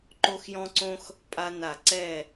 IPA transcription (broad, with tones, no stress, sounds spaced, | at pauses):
ǃ o˦ x j ɔ̃˦ ǀ õ˦ x | pʼ a˦ n a˧˩˧ ǀ ɛ˧˩